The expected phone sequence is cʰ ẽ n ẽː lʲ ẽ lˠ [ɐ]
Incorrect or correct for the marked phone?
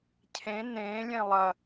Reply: correct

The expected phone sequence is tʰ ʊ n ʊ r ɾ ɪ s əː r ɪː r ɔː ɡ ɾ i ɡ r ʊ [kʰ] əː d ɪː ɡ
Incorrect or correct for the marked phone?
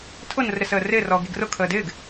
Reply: correct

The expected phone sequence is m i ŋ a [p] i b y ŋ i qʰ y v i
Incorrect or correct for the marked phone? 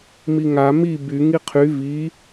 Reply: incorrect: m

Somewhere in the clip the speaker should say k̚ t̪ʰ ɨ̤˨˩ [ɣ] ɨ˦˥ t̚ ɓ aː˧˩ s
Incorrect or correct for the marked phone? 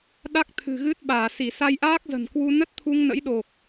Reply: correct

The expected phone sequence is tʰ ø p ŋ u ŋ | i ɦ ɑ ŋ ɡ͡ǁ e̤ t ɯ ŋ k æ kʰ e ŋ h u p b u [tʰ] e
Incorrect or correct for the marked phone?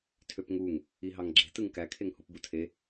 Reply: correct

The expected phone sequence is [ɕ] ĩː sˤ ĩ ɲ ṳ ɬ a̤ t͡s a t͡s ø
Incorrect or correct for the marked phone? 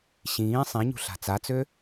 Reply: correct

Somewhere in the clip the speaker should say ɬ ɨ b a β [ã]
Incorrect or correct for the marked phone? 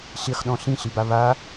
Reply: incorrect: a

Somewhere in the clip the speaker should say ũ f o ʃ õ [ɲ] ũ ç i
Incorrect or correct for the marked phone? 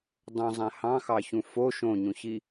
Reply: correct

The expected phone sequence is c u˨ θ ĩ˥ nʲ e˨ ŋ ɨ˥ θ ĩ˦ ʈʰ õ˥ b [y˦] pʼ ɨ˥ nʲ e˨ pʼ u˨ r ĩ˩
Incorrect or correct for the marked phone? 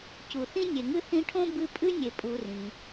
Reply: incorrect: ɨ˦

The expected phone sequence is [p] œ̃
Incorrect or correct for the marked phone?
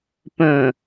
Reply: correct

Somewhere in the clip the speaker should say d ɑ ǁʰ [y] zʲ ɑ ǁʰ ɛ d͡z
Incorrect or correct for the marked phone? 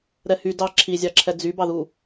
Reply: incorrect: i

